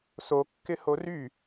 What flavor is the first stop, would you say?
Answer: plain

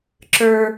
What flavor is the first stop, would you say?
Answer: click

